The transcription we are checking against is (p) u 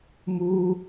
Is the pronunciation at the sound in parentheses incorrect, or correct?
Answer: incorrect